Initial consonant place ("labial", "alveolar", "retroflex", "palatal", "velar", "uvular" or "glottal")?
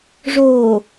retroflex